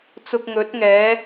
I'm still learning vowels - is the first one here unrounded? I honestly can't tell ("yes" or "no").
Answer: no